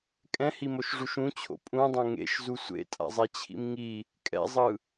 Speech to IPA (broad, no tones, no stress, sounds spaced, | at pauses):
kʼ ɛ̃ h i m o ʃ ʐ u ʃ ũ t͡ɕʰ o̰ pʼ ũ dˤ õ ŋ ḛ ʃ z u sʷ ḛ tʼ a̰ zˤ ɛ t͡ɕʰ ḭ m ŋ i | kʼ ɛ̰ zˤ ɯ